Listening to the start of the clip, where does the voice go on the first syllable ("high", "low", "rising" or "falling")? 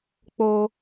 high